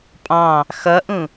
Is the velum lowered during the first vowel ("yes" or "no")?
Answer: yes